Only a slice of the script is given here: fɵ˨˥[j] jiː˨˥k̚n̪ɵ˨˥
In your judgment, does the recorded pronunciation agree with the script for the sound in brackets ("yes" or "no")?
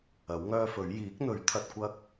no